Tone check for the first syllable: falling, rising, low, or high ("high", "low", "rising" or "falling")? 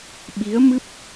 rising